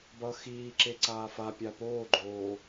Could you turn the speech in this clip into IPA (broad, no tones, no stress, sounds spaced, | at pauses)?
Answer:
b ʌ x iː ǁ e ǀ aː f a pʲ a p oː ɡ͡ǃ oː